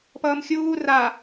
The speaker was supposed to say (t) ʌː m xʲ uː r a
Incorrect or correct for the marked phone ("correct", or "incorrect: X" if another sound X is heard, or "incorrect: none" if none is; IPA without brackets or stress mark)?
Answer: incorrect: p